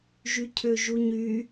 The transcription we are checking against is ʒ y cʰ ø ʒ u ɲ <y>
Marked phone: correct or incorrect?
correct